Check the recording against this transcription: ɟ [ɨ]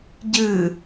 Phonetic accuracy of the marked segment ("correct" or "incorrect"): correct